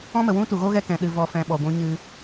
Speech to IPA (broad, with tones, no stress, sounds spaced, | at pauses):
ɔ̃˦ m ə˨ w ũ˦ t u˨ ɣ o˦ ɣ ɛ˧ k ɛ̃˨ ɗ ɨ˨ v ɔ˨ f ɛ̃˨ ɓ ɔ˨ ɡʷ ũ˧ ɲ ɨ˧